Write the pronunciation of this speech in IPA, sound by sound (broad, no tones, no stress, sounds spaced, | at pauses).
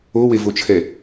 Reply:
o w e v o t͡ʃʰ ɛ